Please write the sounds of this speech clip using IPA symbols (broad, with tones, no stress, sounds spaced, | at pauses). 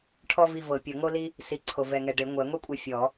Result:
ʈʰ ɔ˥ v i˦˨ v ɤ˨˩˦ pʲ ɤ˨˩˦ ŋ o˥ l i˥ | s i˨˦ ǀʰ o˨ v ɛ˨ ŋ ɛ˨ ɖ e˨˩˦ ŋʷ ɛ˨˩˦ ŋʷ i˥ kʷʼ ɛ˦˨ fʲ ɔ˨˩˦